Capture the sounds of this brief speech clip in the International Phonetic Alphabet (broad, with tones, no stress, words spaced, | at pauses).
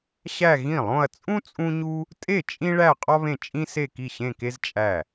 ɕæ˥˧ ɣĩ˥˩lˠõ˥˧ɐ̯ t͡sʼũ˥ t͡sʼũ˥ɲu˥ | tʼe˥˩ t͡ʃʼĩ˥ɭæ˥˧ qʼɒ˥βẽ˥˩ t͡ʃʼĩ˥ se˥˧ki˥˩ɕẽ˥˧ke˥z t͡ʃʼæ˥˩